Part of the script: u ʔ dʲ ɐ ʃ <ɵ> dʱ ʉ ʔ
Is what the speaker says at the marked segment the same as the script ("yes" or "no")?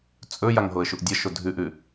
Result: no